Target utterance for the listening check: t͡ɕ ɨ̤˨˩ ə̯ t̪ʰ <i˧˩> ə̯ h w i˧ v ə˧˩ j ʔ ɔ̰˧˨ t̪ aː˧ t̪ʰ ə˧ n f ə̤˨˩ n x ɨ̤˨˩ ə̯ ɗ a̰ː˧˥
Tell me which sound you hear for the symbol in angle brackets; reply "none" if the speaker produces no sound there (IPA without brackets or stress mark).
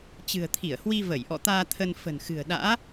i˧˩